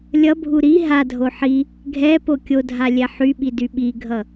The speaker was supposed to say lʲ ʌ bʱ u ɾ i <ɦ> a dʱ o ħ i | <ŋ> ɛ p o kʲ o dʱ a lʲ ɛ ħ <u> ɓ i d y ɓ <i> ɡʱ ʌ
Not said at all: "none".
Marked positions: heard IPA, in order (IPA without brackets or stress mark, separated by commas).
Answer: ɦ, ɡʱ, y, i